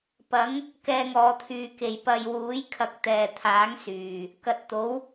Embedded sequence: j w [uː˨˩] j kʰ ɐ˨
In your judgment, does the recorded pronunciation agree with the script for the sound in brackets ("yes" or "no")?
no